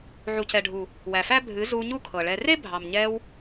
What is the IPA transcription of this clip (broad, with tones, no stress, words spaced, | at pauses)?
ʕu˨cɛ˨ɖʱu˨ | wæ˨fæ˦ bʱɨ˨˦zu˧ ɲu˦kʰɤ˨ɭɛ˧ re˦bʱɑ˨mɲɛ˧w